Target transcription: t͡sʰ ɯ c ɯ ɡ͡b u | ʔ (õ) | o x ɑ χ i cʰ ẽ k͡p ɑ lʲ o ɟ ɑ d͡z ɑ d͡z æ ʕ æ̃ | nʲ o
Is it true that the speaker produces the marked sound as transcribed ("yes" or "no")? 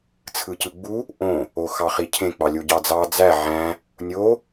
yes